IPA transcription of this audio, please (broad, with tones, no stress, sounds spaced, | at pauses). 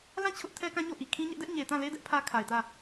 l ã˦˨ t͡ɕʰ ʊ˦ ʔ tʰ ɛ˦ k ã˦ ɲ o˦˨ ʔ i˨ kʰ ĩ˦ ɲ ɛ˦ ʔ d ɛ˦ ʔ ɲ e˨ t ã˦˨ l e˦ d ɛ˦ ʔ pʰ ä˦ kʰ a˨ ɪ̯ t ä˦˨